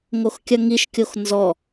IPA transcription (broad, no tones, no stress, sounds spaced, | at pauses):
ŋ o x kʲ ɐ ŋ i ʃ kʲ o x n z ɔ